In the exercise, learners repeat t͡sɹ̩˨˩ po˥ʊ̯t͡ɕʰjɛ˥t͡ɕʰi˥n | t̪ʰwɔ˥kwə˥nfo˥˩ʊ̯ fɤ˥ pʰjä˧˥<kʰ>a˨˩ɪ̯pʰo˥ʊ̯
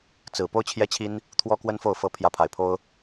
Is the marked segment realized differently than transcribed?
yes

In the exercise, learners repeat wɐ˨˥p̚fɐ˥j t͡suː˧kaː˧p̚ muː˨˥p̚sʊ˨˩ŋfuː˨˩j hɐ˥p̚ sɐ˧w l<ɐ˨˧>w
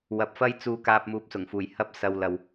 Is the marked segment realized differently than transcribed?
yes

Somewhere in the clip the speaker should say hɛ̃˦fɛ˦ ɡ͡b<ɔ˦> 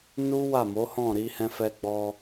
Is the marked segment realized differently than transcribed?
yes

